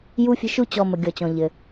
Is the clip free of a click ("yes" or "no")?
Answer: yes